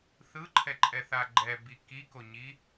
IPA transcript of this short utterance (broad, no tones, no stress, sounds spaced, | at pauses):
θ ɯ ǃʰ ɛ ǃʼ ɛ θ a ɡ͡ǃ ɛ b i k i k o ɲ i